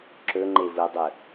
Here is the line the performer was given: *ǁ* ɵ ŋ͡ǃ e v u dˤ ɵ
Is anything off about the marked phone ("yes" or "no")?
no